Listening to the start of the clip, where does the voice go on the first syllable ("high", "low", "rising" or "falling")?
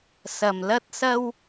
low